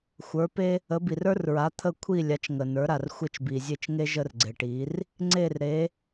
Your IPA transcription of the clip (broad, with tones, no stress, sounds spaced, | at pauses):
xʷ ə˞˩˥ p e˥ | ə˩˥ b i˩ r ə˞˥ r ɹ a˩˥ t̪ʰ ə˥˩ kʷʰ i˥˩ lʲ a˩˥ t͡ʃ ŋ ə˩ n ə˞˩˥ ɾ a˩ r xʷ e˥˩ t͡ʃ b i˩ zʲ e˥˩ t͡ʃ ŋ e˥ ʒ ə˥ r ɡ͡ǀ e˩ ʈ i˩˥ r | ŋ͡ǀ e˥˩ r ɾ e˩˥